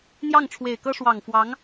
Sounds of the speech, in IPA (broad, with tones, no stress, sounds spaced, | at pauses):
n̪ j ɑ˥˩ ŋ ʈ͡ʂʰ w e˨˩ ɪ̯ k ɤ˥ ʂ w ɑ˨˩ ŋ f w ɑ˧˥ ŋ